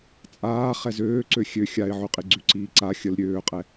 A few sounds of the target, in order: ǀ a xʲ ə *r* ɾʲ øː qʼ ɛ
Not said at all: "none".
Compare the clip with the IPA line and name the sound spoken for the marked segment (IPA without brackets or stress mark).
l